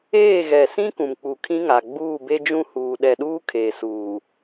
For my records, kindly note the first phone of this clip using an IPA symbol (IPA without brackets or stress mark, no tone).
eː